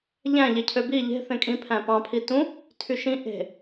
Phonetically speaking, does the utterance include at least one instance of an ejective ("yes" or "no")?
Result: yes